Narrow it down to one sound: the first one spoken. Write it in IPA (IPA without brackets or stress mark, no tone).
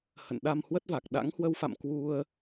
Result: h